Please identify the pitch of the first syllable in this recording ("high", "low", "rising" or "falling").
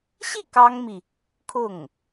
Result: falling